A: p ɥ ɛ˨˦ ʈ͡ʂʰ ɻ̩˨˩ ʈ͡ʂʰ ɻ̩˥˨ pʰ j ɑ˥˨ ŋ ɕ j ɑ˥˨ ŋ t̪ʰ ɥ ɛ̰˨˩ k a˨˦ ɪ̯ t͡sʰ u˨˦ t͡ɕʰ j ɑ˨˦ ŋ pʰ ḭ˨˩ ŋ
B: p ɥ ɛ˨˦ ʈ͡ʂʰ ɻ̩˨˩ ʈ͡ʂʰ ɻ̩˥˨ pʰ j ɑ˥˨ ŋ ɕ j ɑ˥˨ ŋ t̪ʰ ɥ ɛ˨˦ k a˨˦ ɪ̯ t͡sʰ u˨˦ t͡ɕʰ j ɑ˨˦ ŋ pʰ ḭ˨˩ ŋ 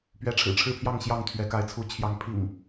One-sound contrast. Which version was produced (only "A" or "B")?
B